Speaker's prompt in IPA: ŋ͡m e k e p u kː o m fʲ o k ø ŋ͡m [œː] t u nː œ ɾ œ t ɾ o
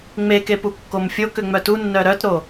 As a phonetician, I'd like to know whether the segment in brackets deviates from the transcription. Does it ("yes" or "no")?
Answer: yes